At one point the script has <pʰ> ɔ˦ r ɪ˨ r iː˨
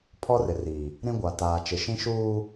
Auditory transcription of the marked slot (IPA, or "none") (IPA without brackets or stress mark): pʰ